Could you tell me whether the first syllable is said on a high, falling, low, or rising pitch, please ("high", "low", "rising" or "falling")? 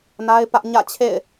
high